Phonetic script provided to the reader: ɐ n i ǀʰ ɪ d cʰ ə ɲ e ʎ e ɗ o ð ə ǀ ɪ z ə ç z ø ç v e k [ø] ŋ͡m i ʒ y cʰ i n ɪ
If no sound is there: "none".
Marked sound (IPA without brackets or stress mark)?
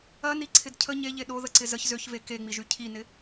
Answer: e